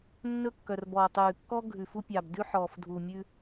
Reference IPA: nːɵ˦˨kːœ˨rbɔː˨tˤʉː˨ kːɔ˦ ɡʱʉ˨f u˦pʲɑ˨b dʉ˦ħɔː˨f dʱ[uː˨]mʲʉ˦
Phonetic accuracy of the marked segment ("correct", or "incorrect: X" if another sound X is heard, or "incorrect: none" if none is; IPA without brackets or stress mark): correct